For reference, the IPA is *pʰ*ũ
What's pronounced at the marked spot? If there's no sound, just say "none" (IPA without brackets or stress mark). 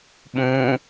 ɓ